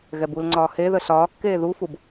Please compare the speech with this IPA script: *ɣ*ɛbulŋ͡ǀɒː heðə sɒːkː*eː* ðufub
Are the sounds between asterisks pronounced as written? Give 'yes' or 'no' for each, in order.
yes, yes

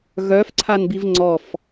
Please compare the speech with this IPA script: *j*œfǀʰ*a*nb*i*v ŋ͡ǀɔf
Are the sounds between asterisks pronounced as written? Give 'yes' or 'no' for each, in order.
no, yes, yes

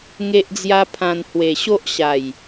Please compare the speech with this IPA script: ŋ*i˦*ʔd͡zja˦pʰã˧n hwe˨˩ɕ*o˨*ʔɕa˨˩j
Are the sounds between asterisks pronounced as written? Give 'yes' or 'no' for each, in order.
no, no

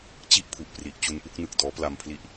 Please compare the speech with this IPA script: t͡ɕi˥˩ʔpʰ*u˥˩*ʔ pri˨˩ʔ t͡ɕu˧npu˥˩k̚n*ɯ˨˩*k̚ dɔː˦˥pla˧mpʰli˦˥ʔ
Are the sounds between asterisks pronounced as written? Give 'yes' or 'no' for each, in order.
no, yes

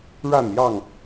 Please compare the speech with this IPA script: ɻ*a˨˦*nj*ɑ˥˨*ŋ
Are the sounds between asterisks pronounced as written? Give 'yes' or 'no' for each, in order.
no, yes

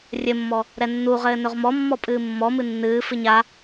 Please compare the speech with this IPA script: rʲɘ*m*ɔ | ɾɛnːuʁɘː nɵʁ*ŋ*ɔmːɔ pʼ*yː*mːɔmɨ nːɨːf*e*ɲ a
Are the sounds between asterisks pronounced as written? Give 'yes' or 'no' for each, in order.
no, no, no, no

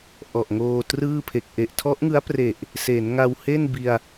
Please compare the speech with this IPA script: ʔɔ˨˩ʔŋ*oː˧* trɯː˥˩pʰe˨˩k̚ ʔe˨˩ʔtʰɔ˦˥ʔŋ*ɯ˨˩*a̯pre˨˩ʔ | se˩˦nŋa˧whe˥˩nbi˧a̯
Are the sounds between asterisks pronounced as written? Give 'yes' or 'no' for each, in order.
yes, no

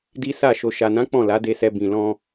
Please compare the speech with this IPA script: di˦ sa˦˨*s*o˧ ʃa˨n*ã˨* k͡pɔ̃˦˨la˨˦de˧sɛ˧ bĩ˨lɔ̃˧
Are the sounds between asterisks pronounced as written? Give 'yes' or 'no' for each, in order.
no, no

